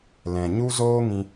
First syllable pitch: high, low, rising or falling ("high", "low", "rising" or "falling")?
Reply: low